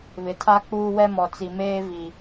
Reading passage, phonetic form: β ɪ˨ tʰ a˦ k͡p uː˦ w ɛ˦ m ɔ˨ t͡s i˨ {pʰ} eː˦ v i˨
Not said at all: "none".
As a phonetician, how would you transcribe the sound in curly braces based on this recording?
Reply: m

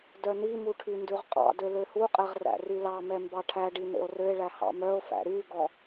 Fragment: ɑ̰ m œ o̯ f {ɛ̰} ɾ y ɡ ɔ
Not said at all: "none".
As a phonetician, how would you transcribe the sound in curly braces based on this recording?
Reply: æ̰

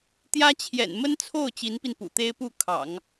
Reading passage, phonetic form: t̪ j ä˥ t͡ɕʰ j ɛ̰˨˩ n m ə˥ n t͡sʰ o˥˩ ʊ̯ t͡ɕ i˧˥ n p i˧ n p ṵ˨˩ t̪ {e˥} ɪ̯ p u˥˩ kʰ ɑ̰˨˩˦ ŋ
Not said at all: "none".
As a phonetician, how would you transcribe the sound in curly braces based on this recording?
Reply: e˥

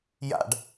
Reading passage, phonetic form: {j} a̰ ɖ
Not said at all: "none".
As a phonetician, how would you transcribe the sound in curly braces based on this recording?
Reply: j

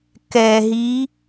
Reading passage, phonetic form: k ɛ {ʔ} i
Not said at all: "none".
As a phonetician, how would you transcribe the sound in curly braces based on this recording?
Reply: ɦ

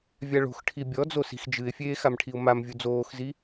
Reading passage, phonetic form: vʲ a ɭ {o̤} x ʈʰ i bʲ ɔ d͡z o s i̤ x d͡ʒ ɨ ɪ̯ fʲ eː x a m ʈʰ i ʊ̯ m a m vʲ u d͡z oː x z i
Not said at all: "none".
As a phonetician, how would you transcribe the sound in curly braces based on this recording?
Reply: o̤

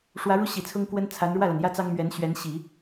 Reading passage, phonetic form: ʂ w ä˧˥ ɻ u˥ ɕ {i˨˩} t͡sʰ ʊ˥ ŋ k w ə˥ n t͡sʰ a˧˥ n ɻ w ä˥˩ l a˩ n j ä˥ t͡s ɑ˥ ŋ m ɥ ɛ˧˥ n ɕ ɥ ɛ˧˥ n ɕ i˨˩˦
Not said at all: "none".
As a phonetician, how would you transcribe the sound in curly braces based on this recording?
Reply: i˨˩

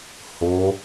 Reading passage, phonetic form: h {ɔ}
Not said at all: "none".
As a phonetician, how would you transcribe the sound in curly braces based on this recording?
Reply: o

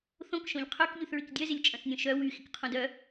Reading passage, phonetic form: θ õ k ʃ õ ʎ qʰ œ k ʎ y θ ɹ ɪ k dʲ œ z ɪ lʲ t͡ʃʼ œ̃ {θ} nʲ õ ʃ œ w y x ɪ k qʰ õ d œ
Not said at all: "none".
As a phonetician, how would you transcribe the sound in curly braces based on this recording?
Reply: θ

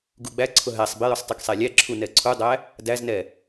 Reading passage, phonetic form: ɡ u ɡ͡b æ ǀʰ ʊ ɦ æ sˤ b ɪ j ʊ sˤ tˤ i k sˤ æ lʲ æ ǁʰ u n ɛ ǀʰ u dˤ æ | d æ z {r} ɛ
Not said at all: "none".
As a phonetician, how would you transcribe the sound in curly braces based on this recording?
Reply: n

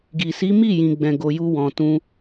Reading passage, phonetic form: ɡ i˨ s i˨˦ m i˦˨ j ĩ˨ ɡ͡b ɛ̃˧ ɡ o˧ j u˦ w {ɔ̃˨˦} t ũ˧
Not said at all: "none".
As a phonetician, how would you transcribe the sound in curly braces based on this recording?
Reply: ɔ̃˧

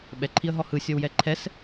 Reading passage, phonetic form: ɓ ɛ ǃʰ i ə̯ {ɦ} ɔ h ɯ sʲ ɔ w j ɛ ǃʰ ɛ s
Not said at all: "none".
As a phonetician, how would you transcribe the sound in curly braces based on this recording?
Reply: ɦ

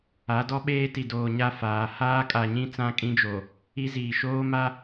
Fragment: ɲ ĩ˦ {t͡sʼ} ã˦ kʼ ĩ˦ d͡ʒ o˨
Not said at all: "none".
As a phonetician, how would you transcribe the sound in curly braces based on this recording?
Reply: t͡s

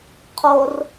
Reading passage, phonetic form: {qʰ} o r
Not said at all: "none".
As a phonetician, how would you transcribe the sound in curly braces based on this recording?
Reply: qʰ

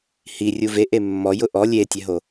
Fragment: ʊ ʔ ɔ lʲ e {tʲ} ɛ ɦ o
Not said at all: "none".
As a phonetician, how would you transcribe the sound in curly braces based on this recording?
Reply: tʲ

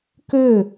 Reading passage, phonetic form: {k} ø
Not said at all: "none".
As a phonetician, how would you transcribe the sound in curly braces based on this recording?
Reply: k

